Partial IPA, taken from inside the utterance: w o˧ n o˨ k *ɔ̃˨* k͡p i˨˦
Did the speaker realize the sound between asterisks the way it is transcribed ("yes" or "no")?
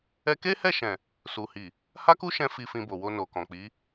yes